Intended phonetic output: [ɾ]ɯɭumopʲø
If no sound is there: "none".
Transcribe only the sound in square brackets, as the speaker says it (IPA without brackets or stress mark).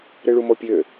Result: ɾ